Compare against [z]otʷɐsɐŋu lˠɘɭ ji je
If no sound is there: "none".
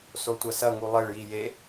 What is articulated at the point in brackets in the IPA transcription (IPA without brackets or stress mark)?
s